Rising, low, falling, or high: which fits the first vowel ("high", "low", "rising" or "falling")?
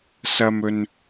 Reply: high